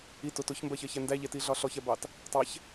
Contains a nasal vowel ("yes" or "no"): no